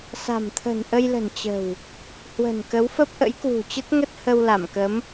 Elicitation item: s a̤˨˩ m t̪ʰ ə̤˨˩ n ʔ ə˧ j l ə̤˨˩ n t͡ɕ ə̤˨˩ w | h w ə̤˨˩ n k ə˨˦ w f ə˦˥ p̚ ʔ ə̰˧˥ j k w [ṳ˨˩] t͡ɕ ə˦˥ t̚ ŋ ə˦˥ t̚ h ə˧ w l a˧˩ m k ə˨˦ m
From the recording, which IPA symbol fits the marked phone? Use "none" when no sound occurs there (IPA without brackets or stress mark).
ṳ˨˩